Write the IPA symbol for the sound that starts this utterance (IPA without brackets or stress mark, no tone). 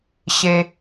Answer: ɕ